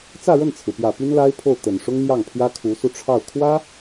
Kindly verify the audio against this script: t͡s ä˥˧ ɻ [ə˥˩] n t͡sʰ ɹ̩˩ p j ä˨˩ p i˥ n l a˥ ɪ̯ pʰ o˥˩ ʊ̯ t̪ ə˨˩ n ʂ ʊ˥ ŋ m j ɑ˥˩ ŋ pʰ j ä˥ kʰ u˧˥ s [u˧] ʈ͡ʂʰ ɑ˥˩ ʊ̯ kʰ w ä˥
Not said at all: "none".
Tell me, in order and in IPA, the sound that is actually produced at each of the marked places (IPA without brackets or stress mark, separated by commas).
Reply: ə˥˩, u˧